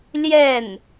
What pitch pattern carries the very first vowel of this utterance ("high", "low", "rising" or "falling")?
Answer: falling